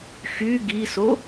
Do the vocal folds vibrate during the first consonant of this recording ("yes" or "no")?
no